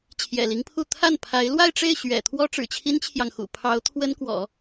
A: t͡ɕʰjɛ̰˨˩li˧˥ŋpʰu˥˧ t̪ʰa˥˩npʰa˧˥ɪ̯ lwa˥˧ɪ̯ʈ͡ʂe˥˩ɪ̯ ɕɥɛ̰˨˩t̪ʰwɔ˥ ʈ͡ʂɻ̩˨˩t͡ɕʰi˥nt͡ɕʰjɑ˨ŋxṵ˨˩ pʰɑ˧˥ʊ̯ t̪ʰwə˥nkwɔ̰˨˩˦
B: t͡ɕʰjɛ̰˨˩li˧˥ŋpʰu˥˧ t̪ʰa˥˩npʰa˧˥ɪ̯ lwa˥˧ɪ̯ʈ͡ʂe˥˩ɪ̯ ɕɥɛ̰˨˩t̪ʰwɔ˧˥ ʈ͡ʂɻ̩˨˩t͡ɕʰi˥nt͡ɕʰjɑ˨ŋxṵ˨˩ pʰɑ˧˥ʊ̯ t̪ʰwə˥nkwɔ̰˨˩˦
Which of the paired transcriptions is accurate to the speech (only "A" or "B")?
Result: A